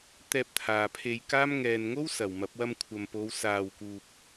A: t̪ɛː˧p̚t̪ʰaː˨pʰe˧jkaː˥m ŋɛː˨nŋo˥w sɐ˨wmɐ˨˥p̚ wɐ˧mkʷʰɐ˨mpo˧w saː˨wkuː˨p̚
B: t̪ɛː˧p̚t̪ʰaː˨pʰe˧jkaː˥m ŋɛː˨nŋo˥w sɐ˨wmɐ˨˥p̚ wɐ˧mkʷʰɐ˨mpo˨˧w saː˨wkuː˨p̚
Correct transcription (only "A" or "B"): B